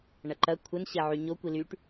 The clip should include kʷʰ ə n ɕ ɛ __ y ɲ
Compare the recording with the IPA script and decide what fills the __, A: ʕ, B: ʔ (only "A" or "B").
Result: A